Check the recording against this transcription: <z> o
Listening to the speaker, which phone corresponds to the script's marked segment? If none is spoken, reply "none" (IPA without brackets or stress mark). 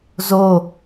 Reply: z